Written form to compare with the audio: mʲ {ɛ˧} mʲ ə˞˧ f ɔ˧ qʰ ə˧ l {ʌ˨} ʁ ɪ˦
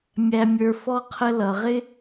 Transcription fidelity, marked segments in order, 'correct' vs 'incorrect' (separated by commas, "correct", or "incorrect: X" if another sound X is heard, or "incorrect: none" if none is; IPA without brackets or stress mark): incorrect: æ˧, correct